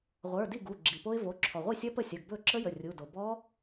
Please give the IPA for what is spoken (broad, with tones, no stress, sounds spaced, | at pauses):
ʁʷ ə˞˩˧˩ d i˥˩ ɡ u˩˧˩ ɡ͡ǁ i˩ p o˦˥ ɪ̯ v o˩˧˩ ǁʰ ɔ˩ ʁʷ i˥˩ sʲ ɐ˦˥ p ə˥˩ sʲ ɐ˩˧˩ ɡ b ɵ˥˩ ǁ ə˦˥ j ə˩˧˩ rʲ u˩˧˩ d o˩ b ɔ˦˥